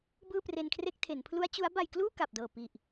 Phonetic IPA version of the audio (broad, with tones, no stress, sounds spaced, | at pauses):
b ɯː˥˩ p r e˧ n kʰ r e˥˩ k̚ tʰ e˩˦ n pʰ l u˦˥ a̯ t͡ɕ u˦˥ a̯ b a˧ j k l uː˥˩ k a˨˩ p̚ d ɤː˨˩ p i˨˩ ʔ